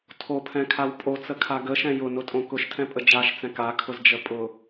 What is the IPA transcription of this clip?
tʰ o pʰ ɛ̃ kʰ a w pʼ o t͡s ə kʰ a ɡ ə ʃ ɛ̃ j ʊ n ʊ tʼ õ k ʊ ʃ tʰ ɛ̃ pʼ ə d͡ʒ a ʃ t͡s ɛ̃ k a kʰ ʊ z d͡ʒ ə pʼ ʊ

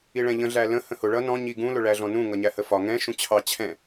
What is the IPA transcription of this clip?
i ɭ ɛ̃ ʎ ə̃ ɮ æ l ə̃ h ə̃ h ʊ ɭ ʌ n ɔ̃ ɲ i ɡ ũ l ʊ ɭ æ ɮ ɔ̃ n ũ ŋ ʌ ɲ æ h ə f ɒ ŋ ɛ̃ ʃ ũ t͡ɕʰ ɑ t͡ɕʰ ɛ̃

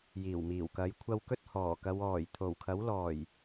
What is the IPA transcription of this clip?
j iː˨˩ w m iː˨˩ w k ɐ˨˧ j kʷʰ ɐ˧ w k ɵ˥ t̚ h ɔː˨˩ k ɐ˨˧ w ɔː˨˩ j t̪ʰ o˨˩ w kʰ ɐ˨˥ w l ɔː˨˩ j

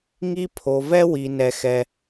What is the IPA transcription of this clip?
ŋ i˦ pʰ o˧ v ɛ˦ w i˧ n ɛ˦ x ɛ˦

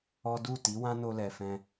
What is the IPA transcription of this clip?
ɔ˦ d u˦˨ t i˨˦ w ã˦ n o˧ l ɛ˨ f ɛ̃˧

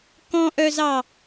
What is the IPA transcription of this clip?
k ɔ̃ ʔ œ z ɑ

